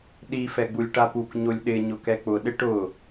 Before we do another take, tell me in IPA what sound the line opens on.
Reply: ɗ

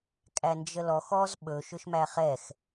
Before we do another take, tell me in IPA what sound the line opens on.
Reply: kʼ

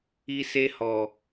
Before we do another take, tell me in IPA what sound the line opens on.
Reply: i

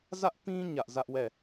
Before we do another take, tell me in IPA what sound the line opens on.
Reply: z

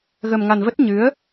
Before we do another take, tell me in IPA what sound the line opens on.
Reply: ɣ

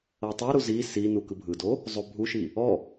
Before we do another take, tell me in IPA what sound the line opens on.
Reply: ɤ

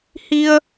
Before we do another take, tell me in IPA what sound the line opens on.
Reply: h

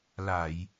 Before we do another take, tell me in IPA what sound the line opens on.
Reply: l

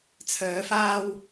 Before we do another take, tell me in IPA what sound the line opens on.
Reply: t͡sʰ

